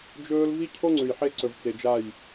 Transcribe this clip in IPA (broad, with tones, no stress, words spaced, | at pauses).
d͡ʒɵː˦l vi˦cʰo˦ ŋ͡ǀʉ˨jħe˦ ǀɵ˨vt͡se˨d͡ʒa˦˨j